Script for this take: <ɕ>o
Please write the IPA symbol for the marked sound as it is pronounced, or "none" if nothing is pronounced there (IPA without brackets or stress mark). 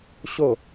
ɕ